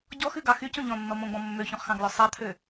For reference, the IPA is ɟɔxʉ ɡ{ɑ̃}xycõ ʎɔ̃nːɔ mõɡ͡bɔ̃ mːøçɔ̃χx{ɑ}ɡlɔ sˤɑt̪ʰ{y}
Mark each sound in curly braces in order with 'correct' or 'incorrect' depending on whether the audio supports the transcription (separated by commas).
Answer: incorrect, incorrect, incorrect